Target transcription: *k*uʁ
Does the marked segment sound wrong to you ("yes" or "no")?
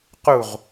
yes